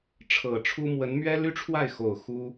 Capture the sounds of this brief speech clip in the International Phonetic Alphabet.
ʈ͡ʂʰɤ˨˩ʈ͡ʂʰu˥ mwə˧˥n mɥɛ˥ly˥ʈ͡ʂʰwa˥˩ɪ̯xo˨˩ʊ̯ xu˥

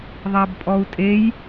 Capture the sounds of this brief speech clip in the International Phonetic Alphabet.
ðˤæbpʼɔu̯tʼej

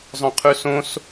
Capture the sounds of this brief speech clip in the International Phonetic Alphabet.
zˤœ̃qʰʉsõs

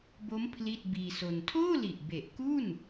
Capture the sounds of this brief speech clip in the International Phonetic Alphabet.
bo˦˥m pʰli˥˩t̚biː˧so˧n tʰoː˥˩li˨˩ʔ be˨˩ʔku˥˩n

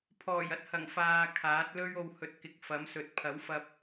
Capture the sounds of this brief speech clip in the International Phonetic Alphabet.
pʰɔː˨˩jɐ˧t̚hɐ˨˩ŋ faː˧kʰaː˨˥t̚ lɵ˧ɥo˨whɵ˨t̚ kɪ˨˥k̚fɐ˨˥msɵ˨˥t̚ pʰɐ˨˥wfɐ˧p̚

